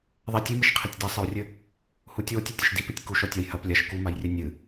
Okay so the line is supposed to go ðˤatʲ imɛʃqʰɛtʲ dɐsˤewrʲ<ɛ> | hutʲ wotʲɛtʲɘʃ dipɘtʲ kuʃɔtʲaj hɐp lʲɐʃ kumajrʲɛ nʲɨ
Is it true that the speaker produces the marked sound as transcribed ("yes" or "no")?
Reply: no